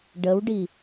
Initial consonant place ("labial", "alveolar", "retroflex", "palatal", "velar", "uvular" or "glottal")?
retroflex